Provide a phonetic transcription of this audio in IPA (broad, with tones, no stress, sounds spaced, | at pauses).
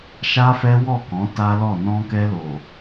ʃ a˦ f ɛ˦ w ɔ˦˨ k ɔ̃˨˦ t a˦ l ɔ˦˨ n ɔ̃˧ k ɛ˧ l o˨